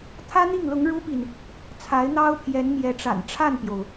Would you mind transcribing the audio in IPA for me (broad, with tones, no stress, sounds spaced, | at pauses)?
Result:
t̪ʰ ä˥ n̪ i˥˩ ŋ l ʊ˧˥ ŋ ɻ u˥ p i˨ n | t͡sʰ a˧˥ ɪ̯ n̪ ɑ˥ ʊ̯ pʰ j ɛ˧˥ n m j ɛ˧˥ ʈ͡ʂ a̰˨˩ n ʈ͡ʂʰ a˥˩ n p j o˩ ʊ̯